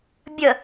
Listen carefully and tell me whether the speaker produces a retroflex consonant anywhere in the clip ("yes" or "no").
no